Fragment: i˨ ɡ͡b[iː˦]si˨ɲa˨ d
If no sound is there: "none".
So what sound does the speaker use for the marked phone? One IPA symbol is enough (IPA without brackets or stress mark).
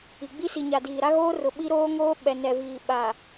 i˦